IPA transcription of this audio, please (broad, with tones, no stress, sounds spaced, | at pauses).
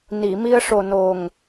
n i˨˩˨ m i˧ ə̯ ʂ o˨˩ n o˨˩ ŋ